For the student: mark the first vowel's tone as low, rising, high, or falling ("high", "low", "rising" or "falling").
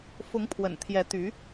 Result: rising